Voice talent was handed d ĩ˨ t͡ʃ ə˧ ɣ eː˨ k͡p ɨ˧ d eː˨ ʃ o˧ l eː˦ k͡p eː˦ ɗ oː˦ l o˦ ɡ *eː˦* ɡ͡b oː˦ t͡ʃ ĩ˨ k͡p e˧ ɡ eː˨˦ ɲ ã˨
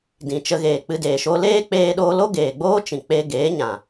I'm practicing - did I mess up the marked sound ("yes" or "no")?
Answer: yes